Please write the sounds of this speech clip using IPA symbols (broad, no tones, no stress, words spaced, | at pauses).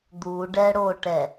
d̪uɖɛɽoʈɛ